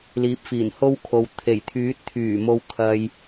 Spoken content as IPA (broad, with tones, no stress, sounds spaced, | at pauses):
l iː˨˥ p̚ f iː˨˩ n h o˥ w kʰ o˨ w t̪ʰ e˨˩ j t̪ʰ yː˨˥ t̚ t̪ʰ yː˨˩ m o˨ w kʰ ɐ˨ j